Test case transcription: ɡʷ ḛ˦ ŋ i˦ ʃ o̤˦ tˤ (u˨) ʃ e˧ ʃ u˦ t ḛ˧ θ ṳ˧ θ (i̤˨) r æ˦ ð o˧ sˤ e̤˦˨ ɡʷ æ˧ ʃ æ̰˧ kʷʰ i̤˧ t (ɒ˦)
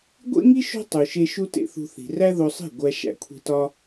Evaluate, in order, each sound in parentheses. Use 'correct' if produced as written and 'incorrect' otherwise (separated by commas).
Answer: correct, correct, correct